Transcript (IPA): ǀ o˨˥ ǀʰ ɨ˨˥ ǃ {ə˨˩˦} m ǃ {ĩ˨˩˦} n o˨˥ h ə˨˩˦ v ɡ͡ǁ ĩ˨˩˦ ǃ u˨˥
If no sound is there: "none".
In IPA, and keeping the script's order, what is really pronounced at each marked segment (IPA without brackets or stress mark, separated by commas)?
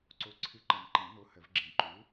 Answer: ə˨˩˦, ĩ˨˩˦